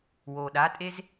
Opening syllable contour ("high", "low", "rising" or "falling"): low